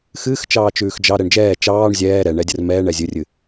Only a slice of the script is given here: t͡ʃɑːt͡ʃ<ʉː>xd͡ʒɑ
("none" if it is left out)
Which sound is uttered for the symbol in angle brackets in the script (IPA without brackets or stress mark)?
ʉː